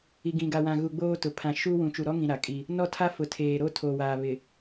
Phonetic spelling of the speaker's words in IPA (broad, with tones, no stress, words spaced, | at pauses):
i˨ɡĩ˨ɡa˨wã˨ ɣu˨ ɡ͡boː˦tʊ˨ pʰã˨ʃu˦wũ˨ t͡ʃu˨ɾɔ˦ŋĩ˨ ɾa˨kʼi˦ | nɔ˦˨tʰa˦ fʊ˨tʰeː˨ɾo˦ tʰoː˨waː˨ βɪ˨